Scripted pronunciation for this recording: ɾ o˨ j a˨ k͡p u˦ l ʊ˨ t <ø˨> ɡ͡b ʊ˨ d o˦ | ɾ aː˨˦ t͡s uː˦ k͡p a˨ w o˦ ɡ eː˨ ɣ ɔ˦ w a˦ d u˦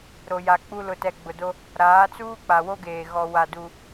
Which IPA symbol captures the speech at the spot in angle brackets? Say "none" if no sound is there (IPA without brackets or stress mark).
ɛ˨